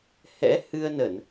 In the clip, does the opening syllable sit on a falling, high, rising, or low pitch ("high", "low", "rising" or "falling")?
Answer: rising